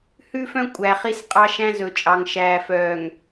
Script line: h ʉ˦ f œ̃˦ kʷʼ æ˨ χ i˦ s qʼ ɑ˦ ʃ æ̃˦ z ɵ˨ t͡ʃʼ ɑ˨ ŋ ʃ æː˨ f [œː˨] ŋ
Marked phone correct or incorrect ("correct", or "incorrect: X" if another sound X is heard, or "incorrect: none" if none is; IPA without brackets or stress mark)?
correct